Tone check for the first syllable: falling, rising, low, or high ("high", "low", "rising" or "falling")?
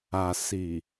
low